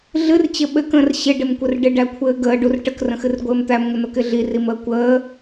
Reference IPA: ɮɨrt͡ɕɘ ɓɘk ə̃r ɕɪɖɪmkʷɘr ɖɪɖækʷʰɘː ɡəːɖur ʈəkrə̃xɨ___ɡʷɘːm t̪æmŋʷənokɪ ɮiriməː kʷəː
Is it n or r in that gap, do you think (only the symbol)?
r